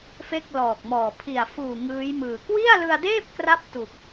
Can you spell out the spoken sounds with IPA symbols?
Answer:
fe˥˩k̚lɔː˨˩k̚mɔː˨˩ pʰi˨˩a̯ fuː˨˩ ŋɯː˦˥jmɯː˨˩ kwi˥˩a̯lɯ˧a̯deː˥˩p̚kra˦˥p̚ tu˨˩k̚

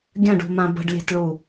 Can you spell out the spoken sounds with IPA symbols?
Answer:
ɡʲə̃ɖṳmã bə̤ɖlʲe̤tɭu

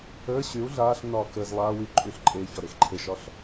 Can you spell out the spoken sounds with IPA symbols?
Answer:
əː ɕyu̯ ɮaːɬnːɒː kəːz lˠaː wyǃʼyːɬ ǃʼeːçɒ ɾexǃʰeʃɒɬ

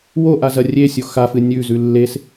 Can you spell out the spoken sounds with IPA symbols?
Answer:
woʔa zɐrʲesʲo xafɨ nʲʉzʉ lːes

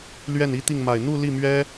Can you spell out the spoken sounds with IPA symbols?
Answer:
lɥɛ˥˩ni˥t̪i˥˩ŋ ma˨˩ɪ̯n̪u˥˧ li˥˩mɥɛ˥

